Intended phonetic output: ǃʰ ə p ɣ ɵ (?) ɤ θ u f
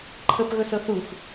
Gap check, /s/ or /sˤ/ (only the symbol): s